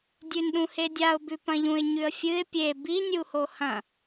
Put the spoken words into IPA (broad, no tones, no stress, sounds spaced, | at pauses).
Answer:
dʲ ʉ n ɗ ũ h e dʲ a ʊ̯ b ʉ p ɐ̃ ʎ ũ ɪ̯ ɲ ʉ ə̯ fʲ ɨ ɪ̯ pʲ e b i nʲ u h o h ɐ̃